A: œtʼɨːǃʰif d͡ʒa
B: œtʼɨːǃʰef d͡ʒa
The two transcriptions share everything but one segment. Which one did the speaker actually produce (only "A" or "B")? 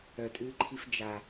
A